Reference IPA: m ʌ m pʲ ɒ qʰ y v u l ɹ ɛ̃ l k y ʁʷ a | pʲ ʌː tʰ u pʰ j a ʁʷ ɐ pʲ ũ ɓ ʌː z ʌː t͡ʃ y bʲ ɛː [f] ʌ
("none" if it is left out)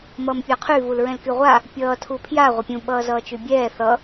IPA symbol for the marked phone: θ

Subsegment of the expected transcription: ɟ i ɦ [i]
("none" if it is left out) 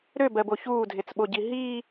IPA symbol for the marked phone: iː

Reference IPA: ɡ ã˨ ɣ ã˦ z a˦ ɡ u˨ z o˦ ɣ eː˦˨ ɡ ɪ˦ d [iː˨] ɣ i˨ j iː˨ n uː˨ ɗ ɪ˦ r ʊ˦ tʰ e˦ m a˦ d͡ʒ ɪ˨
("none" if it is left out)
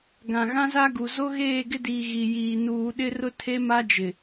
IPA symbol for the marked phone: iː˨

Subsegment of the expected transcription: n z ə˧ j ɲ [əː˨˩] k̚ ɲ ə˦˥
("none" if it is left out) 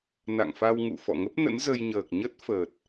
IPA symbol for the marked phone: əː˨˩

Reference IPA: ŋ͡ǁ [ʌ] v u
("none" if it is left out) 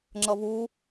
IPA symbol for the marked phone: ʌ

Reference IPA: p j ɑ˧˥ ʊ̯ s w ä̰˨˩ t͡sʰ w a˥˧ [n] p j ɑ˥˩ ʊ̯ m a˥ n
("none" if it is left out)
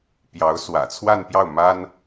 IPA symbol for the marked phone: n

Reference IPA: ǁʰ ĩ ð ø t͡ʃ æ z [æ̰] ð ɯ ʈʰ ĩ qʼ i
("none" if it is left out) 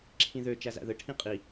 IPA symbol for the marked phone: æ̰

